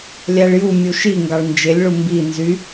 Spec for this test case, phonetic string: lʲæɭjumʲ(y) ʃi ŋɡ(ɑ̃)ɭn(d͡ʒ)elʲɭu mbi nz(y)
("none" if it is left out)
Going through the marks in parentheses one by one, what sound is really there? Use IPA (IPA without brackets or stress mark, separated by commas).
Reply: u, ɑ, d͡ʒ, y